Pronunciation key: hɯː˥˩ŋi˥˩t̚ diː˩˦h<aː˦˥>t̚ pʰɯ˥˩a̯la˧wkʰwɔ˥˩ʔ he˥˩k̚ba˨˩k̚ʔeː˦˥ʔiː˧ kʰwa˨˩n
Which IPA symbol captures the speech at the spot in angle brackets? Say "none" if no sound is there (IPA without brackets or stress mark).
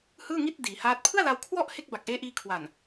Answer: aː˦˥